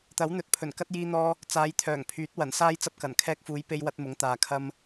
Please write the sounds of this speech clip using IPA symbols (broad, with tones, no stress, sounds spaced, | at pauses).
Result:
t̪ ɐ˨˥ w n̪ ɵ˨˥ t̚ pʰ ɵ˨˩ n k ɐ˥ t̚ j iː˧ n̪ ɔː˧ | t͡s aː˨˧ j t̪ʰ œː˨˩ ŋ pʰ yː˨˥ t̚ w ɐ˨˩ n s aː˥ j t͡s ɐ˥ p̚ k ɐ˨˩ n kʰ ɛː˧ k̚ f uː˨˧ j p e˧ j w ɐ˥ t̚ m ʊ˨˥ ŋ t̪ aː˨ kʰ ɐ˥ m